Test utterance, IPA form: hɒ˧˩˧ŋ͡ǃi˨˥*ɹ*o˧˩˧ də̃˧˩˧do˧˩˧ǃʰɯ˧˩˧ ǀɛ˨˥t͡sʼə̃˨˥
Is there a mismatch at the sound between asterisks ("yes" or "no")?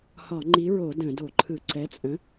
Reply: no